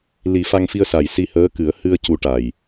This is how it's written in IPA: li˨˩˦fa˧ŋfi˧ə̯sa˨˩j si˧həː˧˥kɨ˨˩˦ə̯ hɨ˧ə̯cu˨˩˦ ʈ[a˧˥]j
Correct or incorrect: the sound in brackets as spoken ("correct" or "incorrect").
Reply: incorrect